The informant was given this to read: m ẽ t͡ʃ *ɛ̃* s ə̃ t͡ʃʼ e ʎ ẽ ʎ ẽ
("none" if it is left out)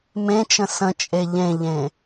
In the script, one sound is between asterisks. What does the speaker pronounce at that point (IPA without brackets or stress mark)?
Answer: ə̃